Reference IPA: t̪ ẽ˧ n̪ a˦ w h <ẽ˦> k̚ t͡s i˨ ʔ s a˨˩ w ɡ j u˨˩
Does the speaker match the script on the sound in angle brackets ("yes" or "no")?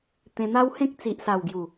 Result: yes